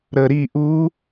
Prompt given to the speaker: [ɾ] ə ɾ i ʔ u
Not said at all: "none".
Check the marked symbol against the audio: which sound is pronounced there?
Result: ɾ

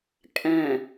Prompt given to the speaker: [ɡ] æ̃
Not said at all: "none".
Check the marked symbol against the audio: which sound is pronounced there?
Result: kʼ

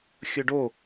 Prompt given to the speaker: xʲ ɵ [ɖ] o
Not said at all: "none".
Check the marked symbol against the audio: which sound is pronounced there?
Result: ɖ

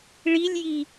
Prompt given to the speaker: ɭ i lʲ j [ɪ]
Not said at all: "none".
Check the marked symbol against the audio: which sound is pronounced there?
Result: i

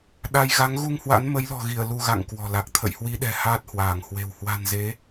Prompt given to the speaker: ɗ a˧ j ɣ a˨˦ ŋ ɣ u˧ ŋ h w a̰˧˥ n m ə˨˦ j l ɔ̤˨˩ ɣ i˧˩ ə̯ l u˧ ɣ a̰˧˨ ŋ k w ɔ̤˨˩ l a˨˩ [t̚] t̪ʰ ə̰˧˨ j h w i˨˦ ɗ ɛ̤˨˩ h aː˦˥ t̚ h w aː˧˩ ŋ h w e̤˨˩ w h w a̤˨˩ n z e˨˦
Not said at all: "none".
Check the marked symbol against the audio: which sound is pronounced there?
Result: k̚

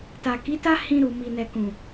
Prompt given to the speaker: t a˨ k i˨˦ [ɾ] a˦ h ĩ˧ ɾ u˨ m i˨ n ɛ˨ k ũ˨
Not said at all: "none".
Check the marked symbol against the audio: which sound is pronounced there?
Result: t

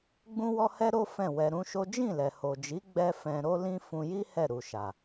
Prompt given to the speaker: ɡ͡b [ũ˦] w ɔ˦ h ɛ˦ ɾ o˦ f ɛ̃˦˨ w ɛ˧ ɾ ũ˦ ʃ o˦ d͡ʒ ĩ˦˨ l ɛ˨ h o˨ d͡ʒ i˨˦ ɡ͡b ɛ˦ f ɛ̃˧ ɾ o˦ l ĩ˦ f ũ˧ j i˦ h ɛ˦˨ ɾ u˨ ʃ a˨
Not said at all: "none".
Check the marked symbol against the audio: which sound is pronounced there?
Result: ũ˦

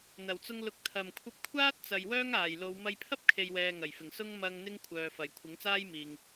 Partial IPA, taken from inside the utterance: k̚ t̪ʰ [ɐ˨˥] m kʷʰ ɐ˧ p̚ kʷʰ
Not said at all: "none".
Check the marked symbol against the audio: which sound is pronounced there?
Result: ɐ˨˩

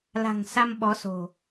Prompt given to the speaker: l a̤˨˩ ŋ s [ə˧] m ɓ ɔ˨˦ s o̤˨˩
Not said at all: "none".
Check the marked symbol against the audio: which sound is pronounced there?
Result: a˧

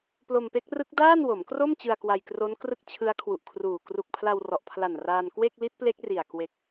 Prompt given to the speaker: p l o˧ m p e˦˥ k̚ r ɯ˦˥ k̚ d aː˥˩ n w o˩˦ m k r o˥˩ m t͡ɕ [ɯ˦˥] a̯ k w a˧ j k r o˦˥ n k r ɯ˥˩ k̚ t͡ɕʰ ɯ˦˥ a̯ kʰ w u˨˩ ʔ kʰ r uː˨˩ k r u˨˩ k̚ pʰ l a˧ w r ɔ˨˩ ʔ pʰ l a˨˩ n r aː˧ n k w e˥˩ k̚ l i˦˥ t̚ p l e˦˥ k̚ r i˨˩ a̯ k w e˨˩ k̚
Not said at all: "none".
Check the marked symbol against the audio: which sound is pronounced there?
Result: ɯ˧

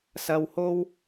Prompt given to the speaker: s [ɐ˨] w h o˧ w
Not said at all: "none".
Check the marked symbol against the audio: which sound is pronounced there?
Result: ɐ˨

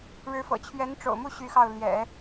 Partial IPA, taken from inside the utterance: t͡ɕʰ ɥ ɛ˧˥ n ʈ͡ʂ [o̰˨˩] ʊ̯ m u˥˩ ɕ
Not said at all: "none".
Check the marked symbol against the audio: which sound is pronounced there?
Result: o̰˨˩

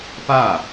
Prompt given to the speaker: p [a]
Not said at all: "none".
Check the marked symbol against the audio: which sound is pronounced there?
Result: a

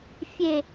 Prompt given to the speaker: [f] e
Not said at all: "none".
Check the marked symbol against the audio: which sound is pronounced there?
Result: fʲ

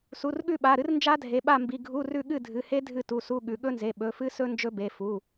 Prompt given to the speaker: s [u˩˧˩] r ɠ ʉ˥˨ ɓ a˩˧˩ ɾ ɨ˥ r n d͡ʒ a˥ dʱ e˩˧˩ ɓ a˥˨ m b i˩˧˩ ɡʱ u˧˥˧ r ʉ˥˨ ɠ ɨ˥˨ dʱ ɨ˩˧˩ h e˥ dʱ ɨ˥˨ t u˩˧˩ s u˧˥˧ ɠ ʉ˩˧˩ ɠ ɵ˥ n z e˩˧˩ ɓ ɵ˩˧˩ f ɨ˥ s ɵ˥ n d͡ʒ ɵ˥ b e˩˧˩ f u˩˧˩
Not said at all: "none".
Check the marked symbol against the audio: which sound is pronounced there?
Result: u˩˧˩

